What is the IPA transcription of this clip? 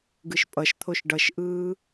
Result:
ɡɯʃpʼʌʃt̪ʰoʃ ɖʌʃʔɯː

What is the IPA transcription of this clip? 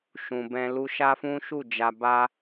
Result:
ʃũ˨bɛ̃˧ lu˧ʃa˦fũ˦ʃu˦˨ d͡ʒa˨ba˧

